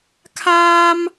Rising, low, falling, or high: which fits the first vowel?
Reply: high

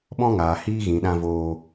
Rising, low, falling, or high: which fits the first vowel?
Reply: high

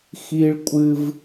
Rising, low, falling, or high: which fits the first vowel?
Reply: high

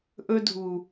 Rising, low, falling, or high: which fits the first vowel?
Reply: high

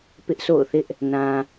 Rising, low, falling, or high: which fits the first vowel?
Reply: high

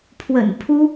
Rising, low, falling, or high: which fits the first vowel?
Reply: low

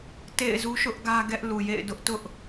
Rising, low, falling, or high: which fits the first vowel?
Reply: falling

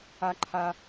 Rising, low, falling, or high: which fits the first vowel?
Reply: high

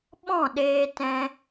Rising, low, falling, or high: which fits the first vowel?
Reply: falling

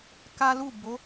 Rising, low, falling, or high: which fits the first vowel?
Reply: high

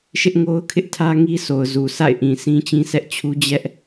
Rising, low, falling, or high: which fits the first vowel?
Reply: high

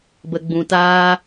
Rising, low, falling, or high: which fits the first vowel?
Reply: low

